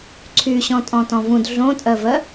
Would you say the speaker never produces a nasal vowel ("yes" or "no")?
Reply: no